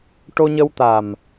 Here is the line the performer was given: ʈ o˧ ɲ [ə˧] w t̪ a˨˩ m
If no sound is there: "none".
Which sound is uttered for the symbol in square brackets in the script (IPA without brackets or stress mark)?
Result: ə˧